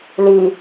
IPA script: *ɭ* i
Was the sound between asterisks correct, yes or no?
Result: no